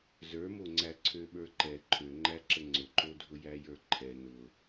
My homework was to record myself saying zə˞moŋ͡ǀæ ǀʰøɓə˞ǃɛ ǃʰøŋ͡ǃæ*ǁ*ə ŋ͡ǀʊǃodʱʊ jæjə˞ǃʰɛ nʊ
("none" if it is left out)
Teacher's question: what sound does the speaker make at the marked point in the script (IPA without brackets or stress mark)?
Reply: ǁ